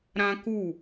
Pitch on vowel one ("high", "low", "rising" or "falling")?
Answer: high